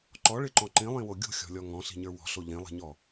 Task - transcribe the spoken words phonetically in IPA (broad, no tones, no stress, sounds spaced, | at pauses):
ǃ ɔ ɭ ɪ ǃ ɔ̃ ǃ ĩ lˠ ĩ w o ɡʲ o̤ xʲ ɔ̤ lʲ ɔ ŋ ɔ̃ ɬ i̤ ɲ ə˞ w ɔ̤ ɬ o ʎ ĩ lˠ i̤ ɲ ɔ